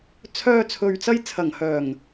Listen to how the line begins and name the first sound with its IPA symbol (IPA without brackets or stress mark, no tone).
t͡sʰ